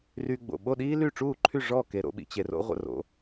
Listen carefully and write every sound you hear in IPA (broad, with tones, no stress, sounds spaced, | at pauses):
r y˧ ɡ͡b o̰˩ ɓ o˥˩ ɗ iː˥ l y˥˩ ʈ͡ʂ uː˥˩ ǃʰ y˥˩ ʐ ɔ˥˩ k e˧ ɾ o̰˩˥ ɓ ḭ˩˥ t͡ɕ e˧ r o̰˥ ʁʷ ə̰˥˩ r o̰˩˥